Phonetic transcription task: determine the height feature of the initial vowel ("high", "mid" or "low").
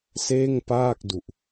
mid